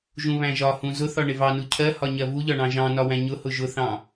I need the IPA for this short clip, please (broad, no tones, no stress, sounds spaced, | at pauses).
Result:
ʒ ũ β æ̃ ʒ ɒ h ũ z ʊ θ ɒ ɳ ɪ v ɑ n u cʰ ɜ h ɒ ɲ ɜ v u ʎ ɒ ɳ ɑ̃ ʒ ɑ̃ n ɒ w æ̃ ɲ ʊ h ʊ ʒ ʊ θ ɑ̃